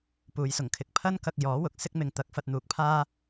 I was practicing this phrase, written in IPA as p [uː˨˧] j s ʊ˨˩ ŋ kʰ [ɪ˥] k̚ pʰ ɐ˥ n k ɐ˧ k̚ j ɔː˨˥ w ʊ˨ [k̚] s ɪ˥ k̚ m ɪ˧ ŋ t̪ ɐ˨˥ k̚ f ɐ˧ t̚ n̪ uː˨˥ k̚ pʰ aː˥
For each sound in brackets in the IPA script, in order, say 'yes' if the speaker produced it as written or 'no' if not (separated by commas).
yes, no, yes